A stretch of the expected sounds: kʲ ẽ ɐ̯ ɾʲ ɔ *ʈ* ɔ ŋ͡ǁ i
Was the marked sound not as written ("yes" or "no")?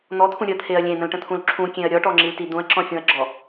no